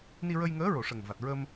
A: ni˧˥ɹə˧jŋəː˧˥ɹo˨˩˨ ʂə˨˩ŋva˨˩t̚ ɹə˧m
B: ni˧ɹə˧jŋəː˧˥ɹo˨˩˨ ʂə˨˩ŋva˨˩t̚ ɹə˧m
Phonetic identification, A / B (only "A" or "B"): B